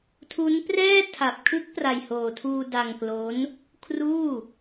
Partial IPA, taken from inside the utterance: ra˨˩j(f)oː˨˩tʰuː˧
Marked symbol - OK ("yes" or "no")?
no